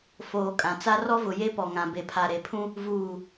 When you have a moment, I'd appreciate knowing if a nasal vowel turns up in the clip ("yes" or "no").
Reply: yes